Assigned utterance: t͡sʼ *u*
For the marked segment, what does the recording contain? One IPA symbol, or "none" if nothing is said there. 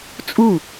u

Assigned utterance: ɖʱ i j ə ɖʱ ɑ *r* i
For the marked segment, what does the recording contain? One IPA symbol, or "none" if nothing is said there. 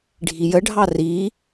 r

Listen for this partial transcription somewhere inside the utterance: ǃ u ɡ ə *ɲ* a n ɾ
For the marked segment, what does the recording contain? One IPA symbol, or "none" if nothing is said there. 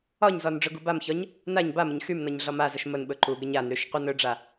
ɲ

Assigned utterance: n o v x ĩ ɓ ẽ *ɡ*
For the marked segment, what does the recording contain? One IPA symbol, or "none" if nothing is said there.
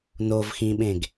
ɡ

